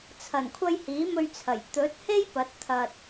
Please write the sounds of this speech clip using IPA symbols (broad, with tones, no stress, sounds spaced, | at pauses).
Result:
t͡sʰ ɐ˨˩ n kʷʰ ɐ˧ j h iː˨˥ m ɵ˧ ɥ t͡sʰ ɐ˨˩ j t̪ ɵ˨˥ t̚ h e˥ j p ɐ˨˥ t̚ t̪ʰ ɐ˨ t̚